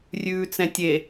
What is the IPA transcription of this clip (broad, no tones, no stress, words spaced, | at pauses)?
rʲʉːt͡sɛ̃tʲe